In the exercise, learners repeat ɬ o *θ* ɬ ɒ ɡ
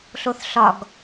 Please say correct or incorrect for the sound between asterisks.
correct